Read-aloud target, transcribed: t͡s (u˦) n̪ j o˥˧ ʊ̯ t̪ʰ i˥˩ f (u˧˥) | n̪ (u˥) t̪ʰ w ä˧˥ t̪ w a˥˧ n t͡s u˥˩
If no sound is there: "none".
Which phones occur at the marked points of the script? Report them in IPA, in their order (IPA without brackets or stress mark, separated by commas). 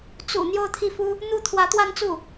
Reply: ṵ˨˩, u˥, u˥˩